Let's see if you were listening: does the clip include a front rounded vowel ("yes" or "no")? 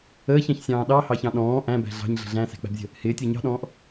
no